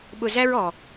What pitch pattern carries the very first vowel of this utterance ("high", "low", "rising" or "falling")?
low